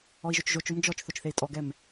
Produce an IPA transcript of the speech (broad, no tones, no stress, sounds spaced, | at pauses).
ɔ i̯ ʒ o t͡ʃ ʒ o t͡ʃ o m d͡ʒ ɔ t͡ʃ θ o t͡ʃ θ e i̯ tʼ ɔ ɡ ɛ m